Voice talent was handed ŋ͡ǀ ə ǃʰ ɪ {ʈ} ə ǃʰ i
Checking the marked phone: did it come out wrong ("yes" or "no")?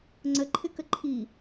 yes